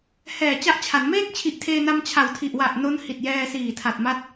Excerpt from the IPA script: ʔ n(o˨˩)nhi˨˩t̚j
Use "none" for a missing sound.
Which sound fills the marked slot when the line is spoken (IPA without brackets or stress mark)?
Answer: o˦˥